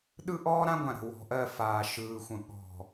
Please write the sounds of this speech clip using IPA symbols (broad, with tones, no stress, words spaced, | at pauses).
ɗɯ˦ʔɔː˦ɾã˦ɡʷã˨ ɾə̤˨wɔ̤˨ʔɜ˦˨ faː˨ʃɯː˨xʷə̃˨ ɠɔ̤˨